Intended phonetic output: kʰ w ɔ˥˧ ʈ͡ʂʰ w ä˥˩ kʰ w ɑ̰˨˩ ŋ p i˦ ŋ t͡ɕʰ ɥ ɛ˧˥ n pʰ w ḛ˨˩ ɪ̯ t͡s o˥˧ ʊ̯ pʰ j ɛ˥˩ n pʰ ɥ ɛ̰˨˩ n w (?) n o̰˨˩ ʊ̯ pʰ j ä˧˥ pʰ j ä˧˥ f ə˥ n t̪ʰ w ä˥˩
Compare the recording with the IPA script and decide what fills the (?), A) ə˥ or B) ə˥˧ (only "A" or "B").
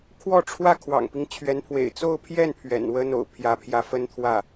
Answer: A